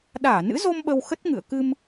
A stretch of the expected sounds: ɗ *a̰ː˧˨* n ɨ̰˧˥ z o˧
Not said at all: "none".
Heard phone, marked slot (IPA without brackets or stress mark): aː˧˩